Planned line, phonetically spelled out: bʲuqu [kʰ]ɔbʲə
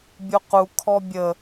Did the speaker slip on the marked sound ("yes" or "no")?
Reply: no